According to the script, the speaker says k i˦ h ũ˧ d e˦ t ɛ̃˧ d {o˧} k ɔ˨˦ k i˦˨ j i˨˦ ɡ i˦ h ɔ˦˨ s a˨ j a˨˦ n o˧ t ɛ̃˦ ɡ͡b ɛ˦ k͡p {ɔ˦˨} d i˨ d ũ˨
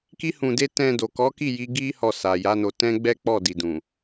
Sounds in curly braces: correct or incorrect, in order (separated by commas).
incorrect, correct